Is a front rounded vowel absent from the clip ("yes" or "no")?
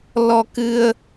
yes